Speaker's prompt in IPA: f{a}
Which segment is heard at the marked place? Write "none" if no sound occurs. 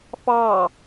ɑ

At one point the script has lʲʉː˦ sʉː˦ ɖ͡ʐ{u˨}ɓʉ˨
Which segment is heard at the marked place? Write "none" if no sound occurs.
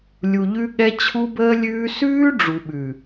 u˨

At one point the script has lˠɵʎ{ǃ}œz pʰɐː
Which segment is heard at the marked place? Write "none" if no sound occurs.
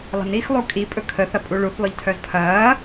tʰ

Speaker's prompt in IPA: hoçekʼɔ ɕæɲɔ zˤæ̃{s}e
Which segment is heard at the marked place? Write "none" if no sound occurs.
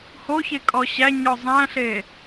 ɬ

